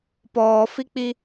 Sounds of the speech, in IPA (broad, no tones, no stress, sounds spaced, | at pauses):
p ɔː f i k͡p i